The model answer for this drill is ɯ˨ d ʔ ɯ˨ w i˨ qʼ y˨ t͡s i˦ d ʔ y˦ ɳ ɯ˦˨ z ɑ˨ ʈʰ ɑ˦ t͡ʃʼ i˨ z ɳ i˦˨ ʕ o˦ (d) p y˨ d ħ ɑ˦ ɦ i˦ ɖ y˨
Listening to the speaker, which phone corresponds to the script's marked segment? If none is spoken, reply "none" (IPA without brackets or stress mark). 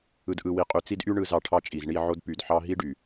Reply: d